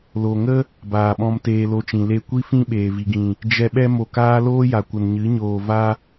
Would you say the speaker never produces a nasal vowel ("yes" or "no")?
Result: no